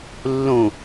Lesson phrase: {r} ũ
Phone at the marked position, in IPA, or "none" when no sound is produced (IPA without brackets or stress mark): lː